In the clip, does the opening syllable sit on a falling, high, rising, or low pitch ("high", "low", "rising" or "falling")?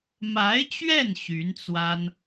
rising